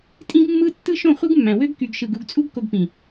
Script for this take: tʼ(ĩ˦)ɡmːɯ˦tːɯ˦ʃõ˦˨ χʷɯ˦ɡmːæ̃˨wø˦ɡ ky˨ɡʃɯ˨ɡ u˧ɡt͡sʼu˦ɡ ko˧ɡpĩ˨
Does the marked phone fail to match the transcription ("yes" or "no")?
no